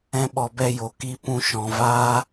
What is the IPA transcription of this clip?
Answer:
ɛ̃˧ ɓ ɔ˨ b ɛ˧ j o˨ k i˧ p ũ˧ ʃ ɔ̃˨ v aː˦

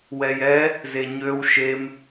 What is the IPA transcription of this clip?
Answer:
w ɛ j ɛ | z e ɲ ø w ʃ e m

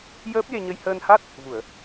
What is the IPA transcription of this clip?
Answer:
j əː˦˥ p̚ j e˧ ɲ ə˧ j h əː˧ n h a˦˥ t̚ | v u˨˩˨ ə̯

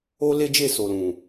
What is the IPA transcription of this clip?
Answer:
o˦ l e˦ d͡ʒ e˦˨ s o˨ l ũ˨

